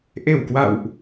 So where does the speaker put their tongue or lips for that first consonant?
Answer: throat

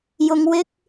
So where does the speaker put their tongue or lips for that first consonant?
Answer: palate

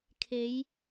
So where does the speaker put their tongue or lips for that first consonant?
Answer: velum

